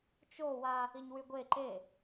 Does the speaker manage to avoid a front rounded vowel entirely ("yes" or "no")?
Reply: no